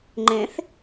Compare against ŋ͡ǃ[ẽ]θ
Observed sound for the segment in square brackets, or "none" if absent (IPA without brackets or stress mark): ẽ